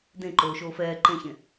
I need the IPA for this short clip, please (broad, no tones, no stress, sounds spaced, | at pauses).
d ẽ ǃ oː ʃ oː f ɛː ǃ ẽ ç ẽ